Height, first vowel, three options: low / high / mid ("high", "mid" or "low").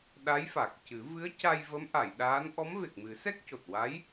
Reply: low